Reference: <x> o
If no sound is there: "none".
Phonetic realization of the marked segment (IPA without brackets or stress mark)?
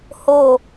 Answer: h